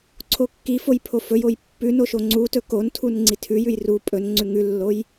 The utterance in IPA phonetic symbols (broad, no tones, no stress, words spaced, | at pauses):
ǀʰokːifoj pʰofɵjoj pːʉno ʃoŋ͡ǀutɵ kon tʰunŋ͡ǀitʰʉjʉj ru pʼɵn ŋ͡ǀʉŋʉlːoj